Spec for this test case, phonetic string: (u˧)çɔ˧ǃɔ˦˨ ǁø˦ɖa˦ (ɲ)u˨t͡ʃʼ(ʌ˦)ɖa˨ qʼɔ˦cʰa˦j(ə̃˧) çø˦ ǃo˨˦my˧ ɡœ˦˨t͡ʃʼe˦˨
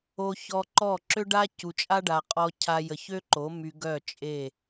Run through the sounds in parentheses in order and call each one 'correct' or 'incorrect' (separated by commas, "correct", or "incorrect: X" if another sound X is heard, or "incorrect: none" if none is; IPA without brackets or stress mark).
incorrect: o˧, incorrect: c, incorrect: a˦, incorrect: ə˧